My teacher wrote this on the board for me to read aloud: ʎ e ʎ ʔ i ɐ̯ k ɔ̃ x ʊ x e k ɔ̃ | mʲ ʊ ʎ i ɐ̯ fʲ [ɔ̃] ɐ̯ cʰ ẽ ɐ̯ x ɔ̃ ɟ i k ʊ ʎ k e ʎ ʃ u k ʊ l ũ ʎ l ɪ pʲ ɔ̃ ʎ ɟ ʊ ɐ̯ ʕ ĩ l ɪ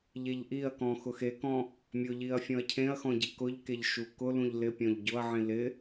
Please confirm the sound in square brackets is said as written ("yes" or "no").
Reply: yes